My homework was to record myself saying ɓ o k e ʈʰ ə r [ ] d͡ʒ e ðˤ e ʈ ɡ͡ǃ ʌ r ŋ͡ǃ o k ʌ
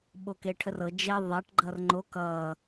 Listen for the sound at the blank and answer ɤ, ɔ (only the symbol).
ɤ